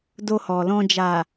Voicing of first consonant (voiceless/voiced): voiced